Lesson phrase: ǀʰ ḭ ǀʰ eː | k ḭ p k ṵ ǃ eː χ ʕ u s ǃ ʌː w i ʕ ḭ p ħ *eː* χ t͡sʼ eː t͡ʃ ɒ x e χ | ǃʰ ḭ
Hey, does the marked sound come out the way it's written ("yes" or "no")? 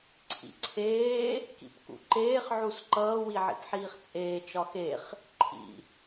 no